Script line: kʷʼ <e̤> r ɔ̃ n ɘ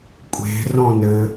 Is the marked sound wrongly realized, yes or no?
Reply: no